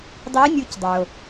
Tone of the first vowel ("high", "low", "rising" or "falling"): rising